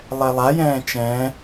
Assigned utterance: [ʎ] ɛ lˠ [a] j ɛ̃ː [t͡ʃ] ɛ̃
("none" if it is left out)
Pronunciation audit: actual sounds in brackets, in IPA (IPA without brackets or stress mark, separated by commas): lˠ, a, t͡ʃ